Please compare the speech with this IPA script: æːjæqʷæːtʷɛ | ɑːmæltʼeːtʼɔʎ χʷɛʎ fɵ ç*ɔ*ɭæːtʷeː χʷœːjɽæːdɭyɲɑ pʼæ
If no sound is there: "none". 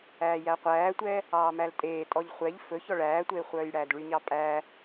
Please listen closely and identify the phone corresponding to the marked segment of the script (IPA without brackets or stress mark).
ɔ